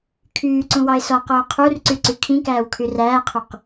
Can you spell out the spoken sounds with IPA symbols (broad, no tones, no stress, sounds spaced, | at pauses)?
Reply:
kʰ yː ǀ ũ w ɑ ɪ̯ s ɔ q oː qʰ u r ǀ y ǀ y kʰ ĩ k æː w kʰ y r æː qʰ u q